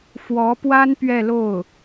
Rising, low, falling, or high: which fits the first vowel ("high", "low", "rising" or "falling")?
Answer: rising